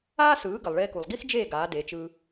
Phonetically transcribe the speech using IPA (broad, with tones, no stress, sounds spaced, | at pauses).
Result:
aː˥ s ɯː˩˥ ɡ ə˩ lˠ ɭ eː˧ k u˩ lˠ ɡ i˥ x d͡ʒ eː˥˩ ɡ aː˩˥ d e˩˥ t͡ʃ ɯ˧